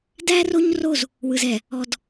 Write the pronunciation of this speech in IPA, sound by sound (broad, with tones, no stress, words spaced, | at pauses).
dæ˦ro˦ɲro˦˨z | wɯ˨z ɛ˨ | ɔ˨d